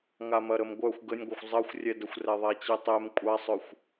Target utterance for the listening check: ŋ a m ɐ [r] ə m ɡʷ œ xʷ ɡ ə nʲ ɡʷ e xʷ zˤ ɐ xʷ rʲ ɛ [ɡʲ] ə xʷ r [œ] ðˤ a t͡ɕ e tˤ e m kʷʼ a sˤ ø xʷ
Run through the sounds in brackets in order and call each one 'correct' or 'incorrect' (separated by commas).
incorrect, incorrect, incorrect